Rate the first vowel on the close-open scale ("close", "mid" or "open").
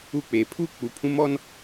close